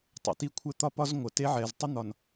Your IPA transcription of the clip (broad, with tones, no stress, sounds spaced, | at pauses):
tˤ ə̰˨ t i˦ kʷʰ ɘ˦ t̪ ɒ˦ p ɒ˦ z ŋʷ ə˨ t e˦ ʕ ɛ˨ z tˤ ə˦ n̪ ɒ˨ n